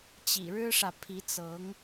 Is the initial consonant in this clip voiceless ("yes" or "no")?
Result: yes